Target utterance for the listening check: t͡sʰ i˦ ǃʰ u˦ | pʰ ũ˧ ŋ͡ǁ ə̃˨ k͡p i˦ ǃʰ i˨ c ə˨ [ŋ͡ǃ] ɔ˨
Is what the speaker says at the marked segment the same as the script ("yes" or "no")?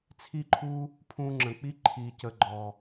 no